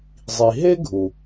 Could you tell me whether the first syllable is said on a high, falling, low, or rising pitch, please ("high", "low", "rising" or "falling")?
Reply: low